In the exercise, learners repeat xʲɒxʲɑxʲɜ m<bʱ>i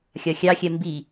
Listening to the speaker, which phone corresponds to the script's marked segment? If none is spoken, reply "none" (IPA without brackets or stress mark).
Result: b